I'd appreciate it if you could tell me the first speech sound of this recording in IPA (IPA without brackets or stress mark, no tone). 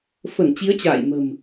f